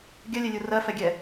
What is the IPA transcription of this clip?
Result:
ɡʲ ɜ lʲ ɛ lʲ u r ɜ f ɛ ɡʲ ɛ

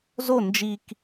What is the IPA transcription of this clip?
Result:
z o n d͡ʒ i k

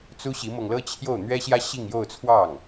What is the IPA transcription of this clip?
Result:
t͡s u˥ ɕ i˧˥ m ɤ˧ ŋ l ɤ˥ t͡ɕʰ j o˥˩ ʊ̯ n̪ ɥ ɛ˥ ɕ j ä˥ ɕ i˥˧ ŋ j o˥˧ ʊ̯ t͡sʰ w ɑ˥˩ ŋ

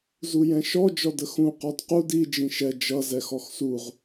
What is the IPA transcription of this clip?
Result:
z u j ɛ̃ ʃ ɔ d͡ʒ ɔ d ə x ũ q ɔ d q u d i d͡ʒ ĩ ʃ ɛ d͡ʒ ʌ z ɛ x ɔ x s u ʁ

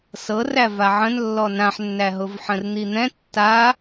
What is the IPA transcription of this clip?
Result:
s ɤ r æ v a ʕ ə̃ n lː ɔ n ã ħ nː æ ɦ ʊ v ħ ə̃ r n̪ i n̪ ɛ̃ tː a

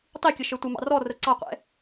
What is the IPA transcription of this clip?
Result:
tˤ i kʲ ə ʃ ə˞ tʷ ə m ɑ̰ r ɔ r ə ǀ ɑ qʷ ɛ̰

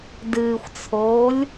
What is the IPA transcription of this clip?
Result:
d ɨː xʷ t͡sʰ oː lʲ

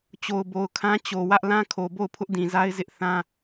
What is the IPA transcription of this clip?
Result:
t͡ɕ o˨ ʊ̯ b o˨ ʊ̯ kʰ ã˦ t͡ɕ o˨ w ä˦ ʔ l ã˦ kʰ o˨ b o˦˨ ʊ̯ pʰ ʊ˦ ʔ d ĩ˨ z a˦ ɪ̯ z ɪ˦ ʔ θ ã˦

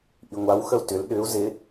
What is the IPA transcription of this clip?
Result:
ʔ i ŋʷ a w x ə u̯ t ʏ l ɗ ʏ u̯ z ɪ

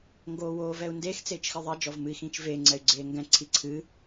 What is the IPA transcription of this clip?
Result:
ŋ ɡ oː w oː v ɛ u̯ n d e x t͡s eː t͡ʃ x ɨ ðˤ ɛ d͡ʒ ɔ v m ɨ i̯ x ĩː t͡ʃ v eː ŋ͡ǀ ɛ y̯ ɡ͡ǀ eː ŋ ɡ ɛ̃ ǀʰ i ǀʰ ɨː

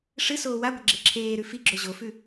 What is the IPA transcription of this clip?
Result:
ʂ ɨ s oː w a ɡʷ ɐ ɡ͡ǁ e ǁʰ eː ɾ ʉ f i ɡ͡ǁ ɵ ʑ o f ʉ

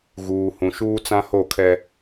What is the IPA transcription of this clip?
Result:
ɣ uː˨ h ũ˨ ʃ uː˦ t͡s ã˦ h o˦˨ kʰ ɛ˦

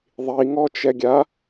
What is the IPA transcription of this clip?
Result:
ðˤ i ŋ ɔ t͡ʃ ɛ ɡʲ a

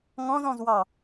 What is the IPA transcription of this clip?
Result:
ŋ ɔ̃ z ɔ̃ z w ɑ

